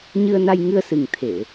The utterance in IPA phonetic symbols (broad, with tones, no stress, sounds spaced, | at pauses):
ɲ ɨ˧ ə̯ n a˧ j ŋ ɨ˧ ə̯ s ɨ˨˩ ŋ t̪ʰ e˧˩˨